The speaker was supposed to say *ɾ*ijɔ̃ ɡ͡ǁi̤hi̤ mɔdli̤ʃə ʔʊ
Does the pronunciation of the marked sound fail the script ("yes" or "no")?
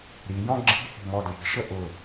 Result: no